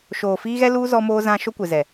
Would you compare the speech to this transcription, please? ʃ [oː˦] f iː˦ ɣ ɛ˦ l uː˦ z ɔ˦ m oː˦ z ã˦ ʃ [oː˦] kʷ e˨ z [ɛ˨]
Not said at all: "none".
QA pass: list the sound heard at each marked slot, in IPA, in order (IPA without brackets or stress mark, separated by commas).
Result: oː˨, o˦, ɛ˨